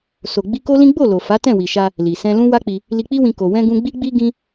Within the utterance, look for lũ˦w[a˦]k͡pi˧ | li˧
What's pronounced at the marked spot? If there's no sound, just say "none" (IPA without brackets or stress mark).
a˦